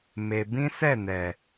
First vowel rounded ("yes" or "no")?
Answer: no